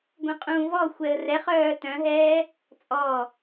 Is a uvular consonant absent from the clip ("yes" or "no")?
no